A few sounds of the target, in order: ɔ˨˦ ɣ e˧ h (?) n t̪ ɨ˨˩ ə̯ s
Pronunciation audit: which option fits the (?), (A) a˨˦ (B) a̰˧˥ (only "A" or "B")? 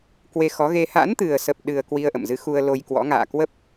B